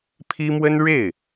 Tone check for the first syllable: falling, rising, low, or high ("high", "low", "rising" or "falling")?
high